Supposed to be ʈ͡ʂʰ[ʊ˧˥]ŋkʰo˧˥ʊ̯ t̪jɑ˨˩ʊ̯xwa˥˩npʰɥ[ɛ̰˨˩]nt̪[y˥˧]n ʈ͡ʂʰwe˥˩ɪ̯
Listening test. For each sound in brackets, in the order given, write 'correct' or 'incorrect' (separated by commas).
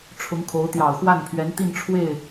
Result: correct, incorrect, incorrect